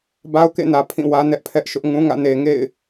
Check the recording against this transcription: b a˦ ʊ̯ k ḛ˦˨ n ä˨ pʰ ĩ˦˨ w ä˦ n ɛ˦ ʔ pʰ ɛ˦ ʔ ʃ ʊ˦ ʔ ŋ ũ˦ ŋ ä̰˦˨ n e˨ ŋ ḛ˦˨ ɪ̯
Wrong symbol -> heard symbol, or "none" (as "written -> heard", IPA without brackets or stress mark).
none